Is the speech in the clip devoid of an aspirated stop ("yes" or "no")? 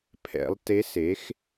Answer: no